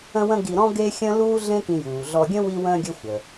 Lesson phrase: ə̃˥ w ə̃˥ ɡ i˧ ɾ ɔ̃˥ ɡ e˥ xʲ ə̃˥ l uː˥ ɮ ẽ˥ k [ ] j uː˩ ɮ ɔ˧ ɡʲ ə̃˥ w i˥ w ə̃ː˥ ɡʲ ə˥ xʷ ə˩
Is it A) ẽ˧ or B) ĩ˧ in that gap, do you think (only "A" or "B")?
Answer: B